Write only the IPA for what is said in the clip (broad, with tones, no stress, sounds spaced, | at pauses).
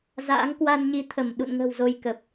z a̰ː˧˥ ŋ k w a˧ n ɲ i˨˦ t̪ʰ ə˧˩ m ɗ ṵ˧˨ n ŋ ə̤˨˩ w z o˧ j k ə˨˩ p̚